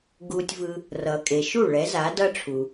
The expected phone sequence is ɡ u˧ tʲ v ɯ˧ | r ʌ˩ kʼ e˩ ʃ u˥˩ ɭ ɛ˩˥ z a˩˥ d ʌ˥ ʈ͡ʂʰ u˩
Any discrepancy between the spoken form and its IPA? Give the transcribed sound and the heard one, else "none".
none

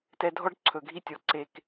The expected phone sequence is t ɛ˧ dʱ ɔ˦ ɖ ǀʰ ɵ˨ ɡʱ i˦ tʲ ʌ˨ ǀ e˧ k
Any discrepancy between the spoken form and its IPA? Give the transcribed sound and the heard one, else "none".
ʌ˨ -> ɔ˨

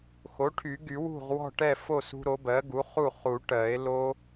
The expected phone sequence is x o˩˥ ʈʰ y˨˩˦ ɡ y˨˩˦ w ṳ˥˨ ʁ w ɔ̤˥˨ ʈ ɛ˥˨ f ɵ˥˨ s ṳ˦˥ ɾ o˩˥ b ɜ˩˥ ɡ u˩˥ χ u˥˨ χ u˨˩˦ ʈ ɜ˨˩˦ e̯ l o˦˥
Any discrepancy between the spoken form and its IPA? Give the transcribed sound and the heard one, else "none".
ɵ˥˨ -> o˥˨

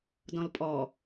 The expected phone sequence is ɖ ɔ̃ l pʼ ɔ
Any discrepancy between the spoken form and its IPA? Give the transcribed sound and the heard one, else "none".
ɖ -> d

